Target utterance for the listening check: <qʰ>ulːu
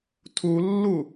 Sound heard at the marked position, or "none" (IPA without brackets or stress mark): tʰ